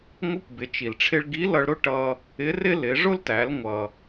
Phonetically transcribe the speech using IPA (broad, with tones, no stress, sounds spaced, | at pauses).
ŋʷ ɪ˧˥ kʷ b ɪ˩˧ t͡ʃ i˩ l ʈ͡ʂʰ ɪ˧ ɭ ɡ i˧˥ l ʌ˧ ɭ ɾ ʊ˥ ʈ ʌ˧ | ɪ˧˥ r ɪ˥ l ɪ˩˧ ʐ ʊ˥ l t æ˩˧ l ŋʷ ʌ˩